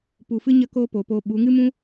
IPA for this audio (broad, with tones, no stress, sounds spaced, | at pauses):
p u˨ f ɨ˦ ɲ ə˦ k oː˦ p o˨˦ p oː˧ ɓ u˨˦ ŋ ɨ˦ m ũ˦